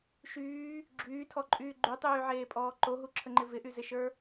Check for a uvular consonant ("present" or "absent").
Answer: absent